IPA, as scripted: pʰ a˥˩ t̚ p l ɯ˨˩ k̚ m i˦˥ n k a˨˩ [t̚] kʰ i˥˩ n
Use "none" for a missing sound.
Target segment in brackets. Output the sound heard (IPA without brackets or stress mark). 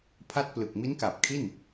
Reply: p̚